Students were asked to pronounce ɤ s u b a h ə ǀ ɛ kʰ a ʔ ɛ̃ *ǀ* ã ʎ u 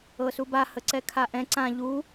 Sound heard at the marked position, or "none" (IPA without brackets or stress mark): ǀ